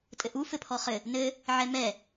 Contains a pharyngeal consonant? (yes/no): yes